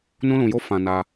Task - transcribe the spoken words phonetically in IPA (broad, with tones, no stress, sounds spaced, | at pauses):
n ũ˦ l ũ˧ j o˦ f ã˧ n a˧